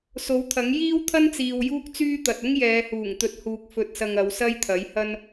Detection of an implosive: absent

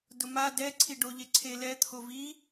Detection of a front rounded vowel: absent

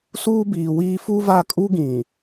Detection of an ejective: present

